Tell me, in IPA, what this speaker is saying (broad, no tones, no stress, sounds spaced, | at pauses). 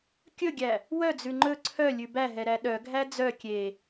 kʲ ɵ ɡʲ æ | w œ d͡z ʉ ŋ͡ǃ ɵ ǀʰ œ lʲ ʉ b æ ɦ ɛ ɾ æ ɗ œ ɡʱ æ d͡z œ kʲ e